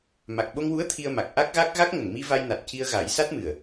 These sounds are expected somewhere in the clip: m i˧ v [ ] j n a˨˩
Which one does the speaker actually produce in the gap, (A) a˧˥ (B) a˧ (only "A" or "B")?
B